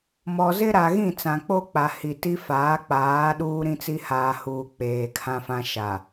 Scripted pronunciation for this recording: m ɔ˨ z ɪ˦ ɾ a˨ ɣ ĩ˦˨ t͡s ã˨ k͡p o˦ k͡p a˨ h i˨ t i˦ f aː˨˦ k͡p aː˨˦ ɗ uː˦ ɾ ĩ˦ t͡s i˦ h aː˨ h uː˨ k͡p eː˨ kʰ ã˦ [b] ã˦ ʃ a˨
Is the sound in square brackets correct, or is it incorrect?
incorrect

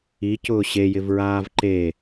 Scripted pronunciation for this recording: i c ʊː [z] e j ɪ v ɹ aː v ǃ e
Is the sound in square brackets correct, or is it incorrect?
incorrect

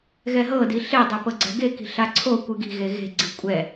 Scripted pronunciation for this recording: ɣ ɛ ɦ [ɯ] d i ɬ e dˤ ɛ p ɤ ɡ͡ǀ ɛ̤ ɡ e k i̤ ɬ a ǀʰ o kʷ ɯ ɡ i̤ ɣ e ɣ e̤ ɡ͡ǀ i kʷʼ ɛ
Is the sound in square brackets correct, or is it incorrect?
incorrect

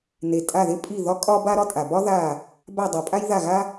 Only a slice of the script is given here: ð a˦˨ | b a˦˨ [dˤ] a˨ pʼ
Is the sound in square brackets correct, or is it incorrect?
correct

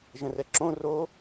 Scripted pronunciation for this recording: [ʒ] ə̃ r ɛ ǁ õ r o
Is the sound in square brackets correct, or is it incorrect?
correct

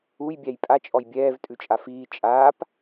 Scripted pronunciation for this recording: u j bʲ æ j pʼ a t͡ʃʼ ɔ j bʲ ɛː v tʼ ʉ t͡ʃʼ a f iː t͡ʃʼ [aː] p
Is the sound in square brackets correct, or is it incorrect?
correct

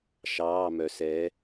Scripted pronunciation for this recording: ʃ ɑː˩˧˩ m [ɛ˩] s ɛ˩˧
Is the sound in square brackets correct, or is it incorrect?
incorrect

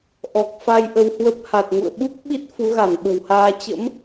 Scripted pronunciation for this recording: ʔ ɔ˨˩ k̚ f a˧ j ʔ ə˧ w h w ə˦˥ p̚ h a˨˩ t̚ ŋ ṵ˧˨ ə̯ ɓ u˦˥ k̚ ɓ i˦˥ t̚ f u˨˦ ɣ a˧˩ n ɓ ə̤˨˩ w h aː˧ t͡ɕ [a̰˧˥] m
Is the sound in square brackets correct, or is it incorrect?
incorrect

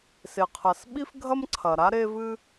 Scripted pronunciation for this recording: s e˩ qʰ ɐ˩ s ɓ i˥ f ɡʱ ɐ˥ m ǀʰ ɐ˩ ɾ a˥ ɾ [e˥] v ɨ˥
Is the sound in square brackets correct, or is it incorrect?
correct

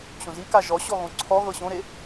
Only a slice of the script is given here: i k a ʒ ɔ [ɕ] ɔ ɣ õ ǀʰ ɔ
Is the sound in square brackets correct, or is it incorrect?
correct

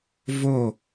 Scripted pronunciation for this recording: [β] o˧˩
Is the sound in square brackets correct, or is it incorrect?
incorrect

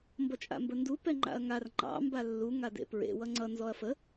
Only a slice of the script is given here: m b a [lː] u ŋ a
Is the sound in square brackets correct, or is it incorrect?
correct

